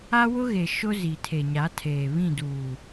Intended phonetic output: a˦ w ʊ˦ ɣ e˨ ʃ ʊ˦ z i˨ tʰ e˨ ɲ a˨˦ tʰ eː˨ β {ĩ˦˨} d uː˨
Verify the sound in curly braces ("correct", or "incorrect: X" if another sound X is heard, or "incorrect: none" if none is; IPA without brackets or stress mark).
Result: correct